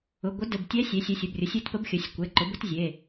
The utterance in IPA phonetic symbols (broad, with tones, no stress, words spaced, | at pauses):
ʊ˩˧˩ɡʷə˧˥ də˩˧˩btʲɛ˧˥sʲe˩˥sʲɛ˩˧˩sʲ ʊ˩˧˩brʲʊ˩˥sʲe˧˥tpə˧˥b xʲə˩˥sʲkʷɛ˩˧˩ ǃʊ˩˥bʊ˧˥tzʲe˩˧˩